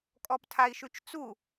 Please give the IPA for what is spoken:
kʼ ɔ p tʰ a i̯ ʃ ʉ t͡ʃ t͡s u

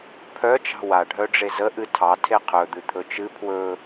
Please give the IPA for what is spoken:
pʰ œ t͡ʃ ɑ̤ w a ɖʱ œ ɖ͡ʐ e z ə ʔ ɨ tʰ ɑ tʰ e qʰ ɵ d̪ ɨ t̪ʰ ɵ t͡ʃ ɨ pʰ w ɵ

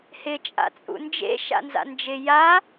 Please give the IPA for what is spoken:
h ɪ t͡ʃʼ a̰ t͡sʼ ṵ n d͡ʒ ḛ ʃ a̰ n z a̰ n d͡ʒ ɪ j a

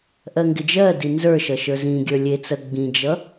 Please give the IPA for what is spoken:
ʔ ɜ ŋ ɡ ɪ d͡ʒ ɜ d i n z ə˞ ʃ ʌ ʃ ə˞ z ĩ ɡʲ ə˞ lʲ e t͡s ɜ ɡ͡b ĩ d͡ʒ ʌ

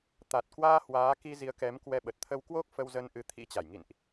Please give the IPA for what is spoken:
t̪ a˨˩ t̚ k w aː˧ h w aː˨˦ k i˧ z i˨˦ ə̯ k ɛ˨˦ m k w ɛ˧ ɓ ə˨˩ t̚ t̪ʰ ə˧ w k w o˦˥ k̚ f ə˧ w z ə˧ n ʔ ɨ˨˦ t̪ʰ ḭ˧˥ t͡ɕ a˧˩ j ŋ ḭ˧˨ n ʔ

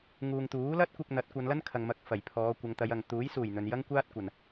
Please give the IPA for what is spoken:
ŋ uː˨ ŋ t̪ uː˨˥ l ɐ˥ t̚ kʷ ɪ˧ k̚ n̪ ɐ˨˥ t̚ kʷ ɐ˨˧ n l ɐ˥ n kʰ ɐ˨ ŋ m ɐ˨˥ k̚ f ɐ˨˩ j pʰ ɔː˨˧ kʷ ɐ˨˧ ŋ t̪ ɐ˨˧ j ɐ˨ ŋ t̪ uː˨˥ j s uː˨˩ j n̪ ɵ˨ n j ɐ˥ ŋ kʷ aː˥ t̚ kʷ ɐ˨ n

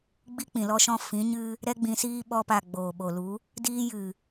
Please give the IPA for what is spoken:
ɡ͡b i˦ k͡p ĩ˨ l ɔ˦ ʃ ɔ̃˦ f ĩ˨˦ ɲ ɨ˦ | ɾ ɛ˦ ɡ͡b ĩ˧ s iː˦ ɓ ɔ˧ p a˨ ɡ͡b oː˨ ɓ o˨ l u˨˦ | d iː˦ j ɨ˨

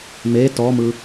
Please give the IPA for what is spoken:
m e t ɔ m ɯ

